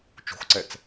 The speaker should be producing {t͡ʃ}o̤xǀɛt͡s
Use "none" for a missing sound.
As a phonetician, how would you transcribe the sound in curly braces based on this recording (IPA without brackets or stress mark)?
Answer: t͡ʃ